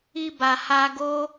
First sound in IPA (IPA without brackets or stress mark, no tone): i